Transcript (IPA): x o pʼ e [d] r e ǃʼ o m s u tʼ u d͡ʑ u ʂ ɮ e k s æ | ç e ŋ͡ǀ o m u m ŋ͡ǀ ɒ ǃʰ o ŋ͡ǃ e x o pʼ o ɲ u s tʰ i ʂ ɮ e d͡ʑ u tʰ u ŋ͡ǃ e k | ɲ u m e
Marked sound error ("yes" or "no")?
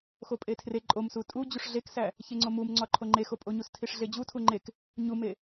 yes